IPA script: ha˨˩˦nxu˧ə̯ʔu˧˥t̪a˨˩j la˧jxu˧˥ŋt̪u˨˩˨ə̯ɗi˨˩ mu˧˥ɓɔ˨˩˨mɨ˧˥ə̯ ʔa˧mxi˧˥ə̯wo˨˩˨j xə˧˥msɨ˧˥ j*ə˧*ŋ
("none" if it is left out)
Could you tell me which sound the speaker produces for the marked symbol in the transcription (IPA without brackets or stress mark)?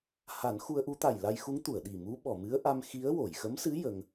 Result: ə˧